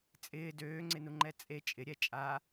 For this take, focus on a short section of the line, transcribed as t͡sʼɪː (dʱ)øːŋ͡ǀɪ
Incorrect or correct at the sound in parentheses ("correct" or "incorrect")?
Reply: incorrect